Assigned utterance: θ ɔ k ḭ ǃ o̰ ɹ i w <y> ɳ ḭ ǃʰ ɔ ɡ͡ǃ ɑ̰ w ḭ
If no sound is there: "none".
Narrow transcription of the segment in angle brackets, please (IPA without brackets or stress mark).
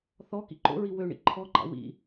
ø